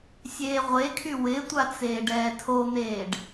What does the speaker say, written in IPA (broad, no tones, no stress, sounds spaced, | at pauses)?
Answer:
sʲ eː ʁʷ e kʰ y w ɪ tʷ a t͡s eː ɖ ɛː tʰ o n̪ eː ɖ